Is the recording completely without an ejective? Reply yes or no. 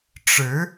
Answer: yes